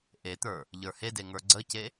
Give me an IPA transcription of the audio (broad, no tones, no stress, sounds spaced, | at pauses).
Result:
ʔ e t̪ ə˞ | ʎ ə˞ h e d e ŋ ə˞ ɡ͡ǀ ə c e